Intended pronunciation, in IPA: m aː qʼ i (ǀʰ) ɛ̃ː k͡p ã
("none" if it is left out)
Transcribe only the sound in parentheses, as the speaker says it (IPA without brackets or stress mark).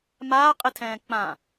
tʰ